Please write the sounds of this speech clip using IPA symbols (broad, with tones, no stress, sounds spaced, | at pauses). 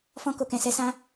f ɔ̃˧ k o˨ k ɛ̃˨ s ɛ˨˦ s ã˦